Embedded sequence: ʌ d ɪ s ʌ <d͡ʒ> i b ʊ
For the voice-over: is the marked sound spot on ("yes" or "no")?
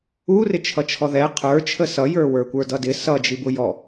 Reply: yes